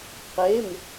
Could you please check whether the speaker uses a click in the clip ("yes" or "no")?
no